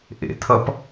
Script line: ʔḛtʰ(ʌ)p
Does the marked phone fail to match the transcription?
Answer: no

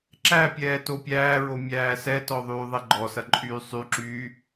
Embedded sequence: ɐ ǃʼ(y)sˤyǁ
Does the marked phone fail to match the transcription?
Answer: yes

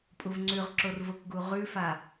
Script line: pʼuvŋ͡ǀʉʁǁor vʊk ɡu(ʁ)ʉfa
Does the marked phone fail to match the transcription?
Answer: no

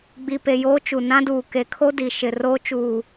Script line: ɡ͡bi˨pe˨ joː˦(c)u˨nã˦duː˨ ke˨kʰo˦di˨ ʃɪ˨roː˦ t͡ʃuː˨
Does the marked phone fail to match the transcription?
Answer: yes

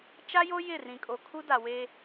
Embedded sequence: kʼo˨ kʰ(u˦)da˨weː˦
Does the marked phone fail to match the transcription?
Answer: no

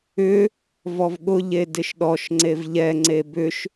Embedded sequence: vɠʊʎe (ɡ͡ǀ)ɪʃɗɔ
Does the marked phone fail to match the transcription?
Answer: yes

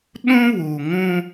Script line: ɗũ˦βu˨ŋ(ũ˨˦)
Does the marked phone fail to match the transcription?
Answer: yes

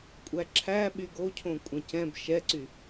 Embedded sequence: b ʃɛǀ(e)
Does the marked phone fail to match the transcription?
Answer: yes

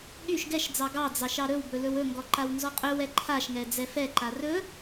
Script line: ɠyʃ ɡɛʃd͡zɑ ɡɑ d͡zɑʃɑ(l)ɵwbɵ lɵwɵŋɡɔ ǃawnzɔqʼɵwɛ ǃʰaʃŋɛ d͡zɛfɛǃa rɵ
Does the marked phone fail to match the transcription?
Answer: yes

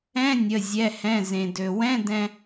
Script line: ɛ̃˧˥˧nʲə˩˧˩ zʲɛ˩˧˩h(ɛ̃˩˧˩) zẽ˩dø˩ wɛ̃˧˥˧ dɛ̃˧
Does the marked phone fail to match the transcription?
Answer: no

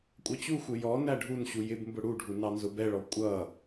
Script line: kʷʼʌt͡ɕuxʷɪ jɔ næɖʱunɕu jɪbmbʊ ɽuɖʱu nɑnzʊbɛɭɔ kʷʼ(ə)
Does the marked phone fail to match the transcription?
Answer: yes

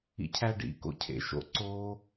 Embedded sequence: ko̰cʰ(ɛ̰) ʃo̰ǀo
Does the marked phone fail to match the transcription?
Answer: yes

